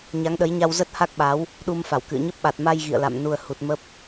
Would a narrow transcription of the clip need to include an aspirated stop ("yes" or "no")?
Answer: no